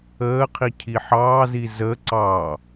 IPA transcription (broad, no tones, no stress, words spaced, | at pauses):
əːqʰi cʰiħɑːzi zə ǀɑ